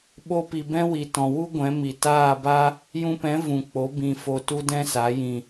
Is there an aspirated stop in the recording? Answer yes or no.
no